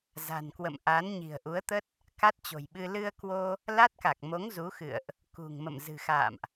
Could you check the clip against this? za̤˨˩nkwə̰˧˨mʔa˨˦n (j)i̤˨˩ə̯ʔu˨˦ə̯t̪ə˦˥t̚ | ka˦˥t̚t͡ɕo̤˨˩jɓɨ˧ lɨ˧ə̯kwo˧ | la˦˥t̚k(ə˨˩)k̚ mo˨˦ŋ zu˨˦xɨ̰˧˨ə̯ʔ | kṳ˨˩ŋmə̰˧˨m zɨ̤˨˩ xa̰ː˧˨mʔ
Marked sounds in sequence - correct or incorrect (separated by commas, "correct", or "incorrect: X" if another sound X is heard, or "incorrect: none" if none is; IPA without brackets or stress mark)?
incorrect: ɲ, incorrect: a˨˩